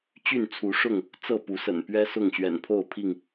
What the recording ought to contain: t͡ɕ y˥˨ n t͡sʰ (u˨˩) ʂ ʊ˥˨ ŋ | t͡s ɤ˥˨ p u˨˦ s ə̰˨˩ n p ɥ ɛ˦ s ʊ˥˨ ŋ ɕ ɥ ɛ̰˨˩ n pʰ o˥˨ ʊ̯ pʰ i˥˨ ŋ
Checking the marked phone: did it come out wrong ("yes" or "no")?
yes